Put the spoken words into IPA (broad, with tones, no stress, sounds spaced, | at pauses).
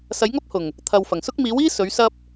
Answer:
s ɐ˨˥ j ŋ ɐ˥ p̚ h ʊ˨˩ ŋ | t̪ʰ ɐ˨ w f ɐ˨˩ ŋ s ʊ˥ k̚ m iː˨˥ w iː˥ s ɵ˨˥ ɥ s ɐ˥ p̚